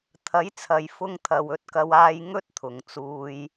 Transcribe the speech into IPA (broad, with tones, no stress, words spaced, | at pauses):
t̪ʰɐ˨˥jt͡sʰɐ˨jfʊ˧ŋ t̪ʰɐ˨wɵ˧t̚kɐ˧w aː˨jŋɵ˧t̚ t̪ʰʊ˨ŋt͡suː˧j